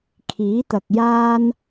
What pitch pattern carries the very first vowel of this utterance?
rising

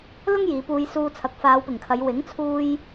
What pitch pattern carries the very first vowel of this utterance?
high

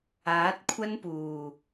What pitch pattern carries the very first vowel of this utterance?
rising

